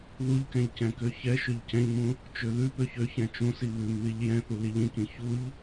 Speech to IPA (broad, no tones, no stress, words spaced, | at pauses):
ðuʎkɛ̃ʎ cɛ̃køçɛ ʃøʎcɛ̃ʎmũ | t͡ʃøðʉ pøçøçɛ̃ t͡ʃũsi βʉmðiʎ jɛ̃θuliʎ ĩkĩ çuʎ